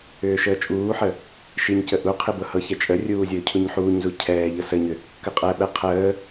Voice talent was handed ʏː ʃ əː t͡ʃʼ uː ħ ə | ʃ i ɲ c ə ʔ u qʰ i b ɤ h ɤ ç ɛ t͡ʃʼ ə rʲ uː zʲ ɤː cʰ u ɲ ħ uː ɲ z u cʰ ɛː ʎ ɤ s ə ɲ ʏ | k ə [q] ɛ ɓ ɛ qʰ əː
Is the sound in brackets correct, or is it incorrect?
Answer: incorrect